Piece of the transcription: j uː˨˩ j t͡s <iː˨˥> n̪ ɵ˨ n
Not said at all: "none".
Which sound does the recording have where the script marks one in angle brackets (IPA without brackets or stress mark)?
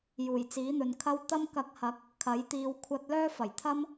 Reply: iː˨˥